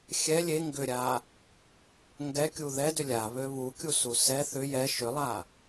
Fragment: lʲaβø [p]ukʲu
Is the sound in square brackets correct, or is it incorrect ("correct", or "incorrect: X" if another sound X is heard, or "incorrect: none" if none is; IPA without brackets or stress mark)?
incorrect: β